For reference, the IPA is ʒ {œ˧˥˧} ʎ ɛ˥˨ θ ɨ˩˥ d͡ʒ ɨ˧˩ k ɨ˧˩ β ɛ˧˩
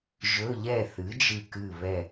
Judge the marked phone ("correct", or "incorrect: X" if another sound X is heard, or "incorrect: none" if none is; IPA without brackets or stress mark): incorrect: ɵ˧˥˧